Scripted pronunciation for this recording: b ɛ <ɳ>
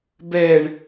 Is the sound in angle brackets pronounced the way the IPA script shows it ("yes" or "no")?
yes